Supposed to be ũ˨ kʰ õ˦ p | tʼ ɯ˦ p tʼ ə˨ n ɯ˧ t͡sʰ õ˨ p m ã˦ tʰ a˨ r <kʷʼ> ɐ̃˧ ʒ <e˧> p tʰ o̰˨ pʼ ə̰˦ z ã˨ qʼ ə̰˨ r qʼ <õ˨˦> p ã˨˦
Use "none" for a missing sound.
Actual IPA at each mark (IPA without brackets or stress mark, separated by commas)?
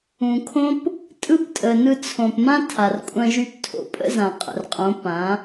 kʷʼ, y˧, õ˨˦